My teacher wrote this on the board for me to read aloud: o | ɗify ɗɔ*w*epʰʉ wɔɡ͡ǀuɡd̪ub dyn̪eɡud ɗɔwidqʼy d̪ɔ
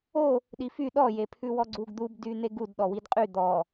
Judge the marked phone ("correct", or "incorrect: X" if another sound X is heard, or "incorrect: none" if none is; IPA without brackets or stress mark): incorrect: j